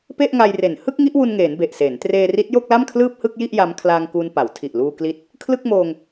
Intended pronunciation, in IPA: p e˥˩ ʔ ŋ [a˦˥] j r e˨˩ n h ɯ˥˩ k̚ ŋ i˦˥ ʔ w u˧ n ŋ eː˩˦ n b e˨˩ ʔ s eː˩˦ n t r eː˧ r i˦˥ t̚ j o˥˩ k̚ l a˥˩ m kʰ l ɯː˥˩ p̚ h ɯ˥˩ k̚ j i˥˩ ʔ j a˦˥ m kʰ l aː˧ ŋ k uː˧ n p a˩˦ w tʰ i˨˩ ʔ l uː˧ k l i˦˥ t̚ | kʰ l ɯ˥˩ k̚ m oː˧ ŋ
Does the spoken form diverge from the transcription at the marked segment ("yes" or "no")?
yes